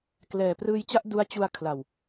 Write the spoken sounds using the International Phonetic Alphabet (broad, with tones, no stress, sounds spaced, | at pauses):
k l ɛː˨˩ p r ɯː˧ j t͡ɕ a˥˩ ʔ d u˦˥ a̯ t͡ɕ u˧ a̯ kʰ l a˨˩ w